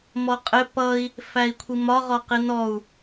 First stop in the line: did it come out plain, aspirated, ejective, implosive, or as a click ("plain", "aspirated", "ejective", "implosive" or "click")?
ejective